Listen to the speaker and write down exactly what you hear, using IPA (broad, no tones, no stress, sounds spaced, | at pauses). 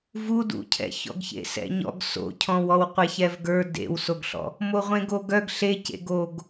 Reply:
v u d ṵ cʰ ɛ̰ ç ɔ̰ ɡ ç ḛ s ɛ̰ ɲ ɔ̰ ɡ s o̰ cʰ ɔ̃ w ɔ w qʷ e ç ɛ v ɡ ə˞ d ḛ w s o ɡ ɬ ɔ̰ | m o ʁʷ ẽ ɡ o ɡ œ ɡ ɬ e c ḛ ɡ o ɡ